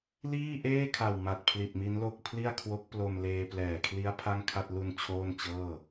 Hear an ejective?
no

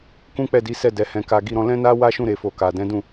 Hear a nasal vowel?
yes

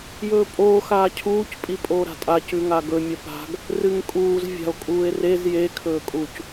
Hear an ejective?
yes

